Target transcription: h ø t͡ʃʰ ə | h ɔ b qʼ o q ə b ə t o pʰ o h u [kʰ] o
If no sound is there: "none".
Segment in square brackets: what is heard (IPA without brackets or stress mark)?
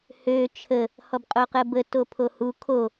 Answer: kʰ